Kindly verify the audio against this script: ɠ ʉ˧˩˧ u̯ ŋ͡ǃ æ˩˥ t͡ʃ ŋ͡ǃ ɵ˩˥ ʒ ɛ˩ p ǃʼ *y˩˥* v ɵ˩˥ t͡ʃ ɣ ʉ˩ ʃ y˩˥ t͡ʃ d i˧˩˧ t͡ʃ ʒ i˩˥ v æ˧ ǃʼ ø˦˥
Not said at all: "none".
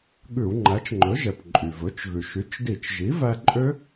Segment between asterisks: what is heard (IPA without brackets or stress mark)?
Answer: y˩